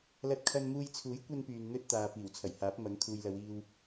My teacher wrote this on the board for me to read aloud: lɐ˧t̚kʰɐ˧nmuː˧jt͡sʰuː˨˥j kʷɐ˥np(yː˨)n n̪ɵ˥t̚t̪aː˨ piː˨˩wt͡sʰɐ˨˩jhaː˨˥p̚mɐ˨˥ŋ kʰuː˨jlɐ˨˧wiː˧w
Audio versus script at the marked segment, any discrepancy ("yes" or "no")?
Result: no